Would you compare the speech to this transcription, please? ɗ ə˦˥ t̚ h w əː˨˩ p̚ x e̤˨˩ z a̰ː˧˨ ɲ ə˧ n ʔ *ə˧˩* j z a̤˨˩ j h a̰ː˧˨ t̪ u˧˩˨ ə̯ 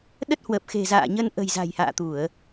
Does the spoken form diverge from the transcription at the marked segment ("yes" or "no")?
yes